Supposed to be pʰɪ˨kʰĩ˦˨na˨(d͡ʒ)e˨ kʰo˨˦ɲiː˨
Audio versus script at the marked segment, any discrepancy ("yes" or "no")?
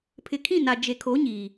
no